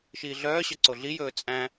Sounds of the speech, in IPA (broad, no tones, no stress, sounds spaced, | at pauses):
ʃ iː ɮ œː ɕ œ ǀ o ɮ i j ɵː t͡sʼ æ̃